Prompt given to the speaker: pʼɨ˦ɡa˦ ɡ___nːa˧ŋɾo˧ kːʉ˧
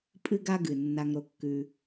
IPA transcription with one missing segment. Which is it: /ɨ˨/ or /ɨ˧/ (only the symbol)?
ɨ˨